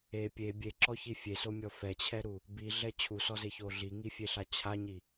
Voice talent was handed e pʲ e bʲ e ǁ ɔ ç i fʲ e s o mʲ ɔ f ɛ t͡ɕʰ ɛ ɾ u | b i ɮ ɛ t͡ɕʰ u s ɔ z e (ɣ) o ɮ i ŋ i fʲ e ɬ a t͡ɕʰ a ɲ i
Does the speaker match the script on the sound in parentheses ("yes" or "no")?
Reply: no